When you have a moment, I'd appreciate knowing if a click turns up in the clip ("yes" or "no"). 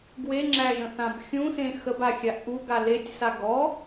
yes